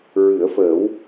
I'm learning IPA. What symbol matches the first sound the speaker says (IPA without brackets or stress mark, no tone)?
ɹ